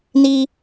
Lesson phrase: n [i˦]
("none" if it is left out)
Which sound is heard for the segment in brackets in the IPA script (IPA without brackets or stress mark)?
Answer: i˦